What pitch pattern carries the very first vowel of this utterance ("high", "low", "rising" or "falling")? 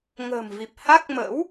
low